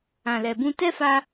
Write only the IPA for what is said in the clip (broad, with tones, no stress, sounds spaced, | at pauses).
ã˨ l ɛ˨ b ũ˧ t ɛ˦ f a˧